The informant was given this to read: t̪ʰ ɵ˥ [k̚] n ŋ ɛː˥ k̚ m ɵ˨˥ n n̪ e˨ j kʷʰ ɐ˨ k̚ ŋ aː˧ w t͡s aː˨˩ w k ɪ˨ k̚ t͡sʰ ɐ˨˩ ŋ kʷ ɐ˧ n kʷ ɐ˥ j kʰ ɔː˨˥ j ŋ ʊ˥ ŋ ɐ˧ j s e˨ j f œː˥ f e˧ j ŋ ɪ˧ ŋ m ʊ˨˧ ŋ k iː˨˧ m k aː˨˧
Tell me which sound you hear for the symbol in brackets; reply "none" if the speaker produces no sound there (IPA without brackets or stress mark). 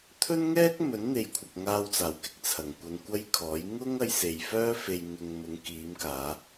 none